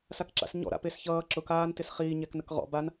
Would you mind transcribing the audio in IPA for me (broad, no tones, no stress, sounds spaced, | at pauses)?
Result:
s a k ǁ a̰ s ɲ ɔ̰ ɾ a̰ p e s ç ʌː ǁ ʊ k aː n t ɪ s χ iː ɲ ɛ k n ə k ʁ ɔ̰ b a n